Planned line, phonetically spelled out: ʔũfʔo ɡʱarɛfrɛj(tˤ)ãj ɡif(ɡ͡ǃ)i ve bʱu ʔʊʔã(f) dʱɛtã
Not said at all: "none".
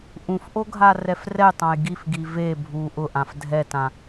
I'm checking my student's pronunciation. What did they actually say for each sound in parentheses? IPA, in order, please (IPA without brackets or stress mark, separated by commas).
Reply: tˤ, ɡ, f